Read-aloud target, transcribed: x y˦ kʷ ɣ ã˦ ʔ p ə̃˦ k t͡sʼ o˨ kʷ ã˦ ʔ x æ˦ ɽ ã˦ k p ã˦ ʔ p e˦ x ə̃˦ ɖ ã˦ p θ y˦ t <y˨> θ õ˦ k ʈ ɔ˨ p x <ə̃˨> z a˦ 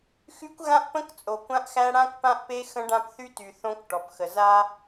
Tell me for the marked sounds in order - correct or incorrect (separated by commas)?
correct, incorrect